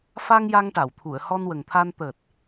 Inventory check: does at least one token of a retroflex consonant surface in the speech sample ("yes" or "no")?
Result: yes